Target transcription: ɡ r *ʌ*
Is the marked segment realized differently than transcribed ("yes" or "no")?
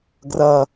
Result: no